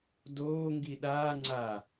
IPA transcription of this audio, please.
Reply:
d oː ŋ ɡ i ɗ aː ŋ͡ǀ a

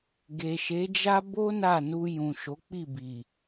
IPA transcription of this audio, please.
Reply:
ɡ e˨ ʃ e˨˦ d͡ʒ a˦ b o˦ n a˦˨ n u˧ j ũ˨ ʃ o˨˦ k͡p i˦˨ b i˨

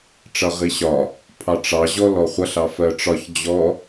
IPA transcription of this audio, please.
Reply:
ʈ͡ʂ ʌ ʁ i ɕ ɒ | pʰ ɑ ʈ͡ʂ ɑ ʑ ɔ l ɔ χʷ ʌ ɬ ɑ f ɜ ʈ͡ʂ ɒ ç d͡ʑ ɔ

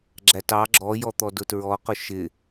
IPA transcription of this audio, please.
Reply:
ɡ͡ǁ æ t ɑ ɡ͡ǁ ɔ j ɔ t̪ ɔ d ʊ t ɹ ɔ q ʊ ʃ ɪ

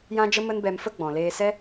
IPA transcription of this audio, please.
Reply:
j ã˧ d͡ʒ ə˧ m ə˧ n b ɛ˧ m f ə˦ ɡ͡b ɔ̃˨ l eː˧ s ɛ˦

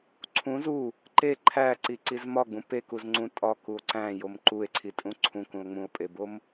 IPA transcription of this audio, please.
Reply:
ǀʰ ũ z u | ǃ e ǃʰ æ ǀ i ǀ i z m ɒ ɡ͡b ũ p e k u z ŋ͡ǀ ũ tʼ ɒ k u o̯ ǀ æ̃ j o m ǃ u e̯ ǀʰ i tʼ ũ ǀʰ ũ k ũ o̯ ŋ͡m ũ o̯ pʼ e b o m

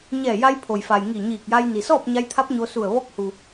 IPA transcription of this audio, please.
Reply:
ɲ ɛː˧˩ j a˧ j pʰ o˩ j f a˩ j ŋ i˧˩ ɲ iː˧˩ k̚ j a˧ j n i˩ s ɔː˥˨ p̚ ɲ a˧ j t̪ʰ a˧˥ p̚ ɲ o˧ s u˧˩ ə̯ ʋ ɔː˧˥ k̚ h u˩

